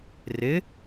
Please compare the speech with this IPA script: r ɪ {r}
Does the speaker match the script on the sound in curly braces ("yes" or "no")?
no